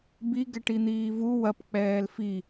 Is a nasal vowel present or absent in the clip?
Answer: absent